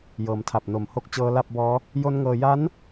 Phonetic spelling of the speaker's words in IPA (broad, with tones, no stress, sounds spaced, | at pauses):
j ɤː˩˦ m tʰ a˨˩ p̚ n o˨˩ m h o˦˥ k̚ t͡ɕ ɤː˦˥ l a˥˩ p̚ b ɔː˦˥ | j o˦˥ n ŋ ɤː˧ j a˦˥ n